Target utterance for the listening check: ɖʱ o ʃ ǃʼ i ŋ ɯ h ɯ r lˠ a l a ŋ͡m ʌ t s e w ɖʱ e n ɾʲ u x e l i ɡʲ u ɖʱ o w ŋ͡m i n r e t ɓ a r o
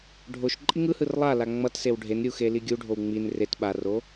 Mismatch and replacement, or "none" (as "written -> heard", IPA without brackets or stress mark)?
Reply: none